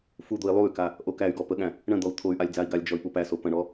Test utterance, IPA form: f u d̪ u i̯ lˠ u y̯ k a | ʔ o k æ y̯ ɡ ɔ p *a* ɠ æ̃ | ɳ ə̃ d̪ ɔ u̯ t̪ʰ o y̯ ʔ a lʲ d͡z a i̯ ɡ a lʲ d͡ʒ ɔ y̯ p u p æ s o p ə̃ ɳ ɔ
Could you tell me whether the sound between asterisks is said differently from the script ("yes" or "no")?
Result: yes